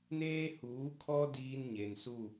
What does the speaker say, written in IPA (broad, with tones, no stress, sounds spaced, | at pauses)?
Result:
n eː˦ h uː˨˦ kʰ ɔ˦ d iː˦ n ɲ e˨ n s u˦˨